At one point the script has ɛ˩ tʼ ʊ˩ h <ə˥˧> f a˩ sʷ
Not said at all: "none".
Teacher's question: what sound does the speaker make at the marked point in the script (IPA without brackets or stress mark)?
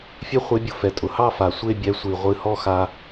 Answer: ɑ˥˧